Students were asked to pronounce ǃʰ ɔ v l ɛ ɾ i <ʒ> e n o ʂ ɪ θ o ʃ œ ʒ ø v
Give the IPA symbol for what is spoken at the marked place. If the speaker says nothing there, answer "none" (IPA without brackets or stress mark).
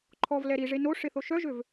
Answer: ʐ